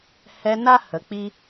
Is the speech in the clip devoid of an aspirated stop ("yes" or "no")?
yes